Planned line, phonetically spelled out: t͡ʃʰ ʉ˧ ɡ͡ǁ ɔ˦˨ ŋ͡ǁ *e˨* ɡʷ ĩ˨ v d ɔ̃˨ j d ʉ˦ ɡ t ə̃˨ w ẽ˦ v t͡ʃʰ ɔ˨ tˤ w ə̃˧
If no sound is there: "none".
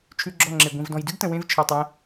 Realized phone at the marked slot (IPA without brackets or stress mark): e˨